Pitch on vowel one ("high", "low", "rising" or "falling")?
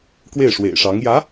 falling